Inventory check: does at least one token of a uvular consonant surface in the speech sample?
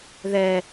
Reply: no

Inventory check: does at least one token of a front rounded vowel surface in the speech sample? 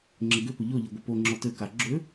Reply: yes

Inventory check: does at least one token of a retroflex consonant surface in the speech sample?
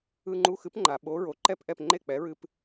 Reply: no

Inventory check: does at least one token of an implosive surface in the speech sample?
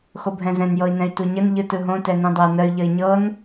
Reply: no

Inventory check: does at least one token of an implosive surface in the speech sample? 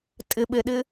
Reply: yes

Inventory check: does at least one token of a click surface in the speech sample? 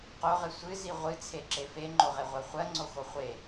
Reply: yes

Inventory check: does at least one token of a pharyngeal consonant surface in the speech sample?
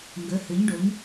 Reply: no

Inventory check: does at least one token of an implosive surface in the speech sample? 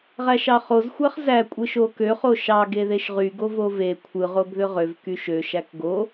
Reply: no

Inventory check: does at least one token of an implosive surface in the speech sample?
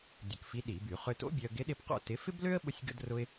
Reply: yes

